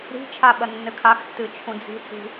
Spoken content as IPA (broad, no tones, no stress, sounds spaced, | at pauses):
ɾ i̤ t͡ʃʰ a ɓ ɐ nː ɘ kʰ a x tː ɨ t͡ʃʰ ũ d͡z i̤ t͡s i̤